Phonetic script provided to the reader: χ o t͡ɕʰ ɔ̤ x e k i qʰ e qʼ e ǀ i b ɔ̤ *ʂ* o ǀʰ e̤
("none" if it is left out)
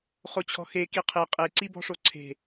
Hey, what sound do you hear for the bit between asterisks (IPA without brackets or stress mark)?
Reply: ʂ